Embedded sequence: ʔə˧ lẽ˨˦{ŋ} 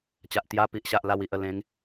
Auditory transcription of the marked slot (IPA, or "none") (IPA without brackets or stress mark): ŋ